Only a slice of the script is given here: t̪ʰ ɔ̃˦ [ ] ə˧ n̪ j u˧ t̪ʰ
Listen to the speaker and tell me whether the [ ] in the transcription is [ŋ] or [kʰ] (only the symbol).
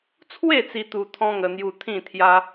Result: ŋ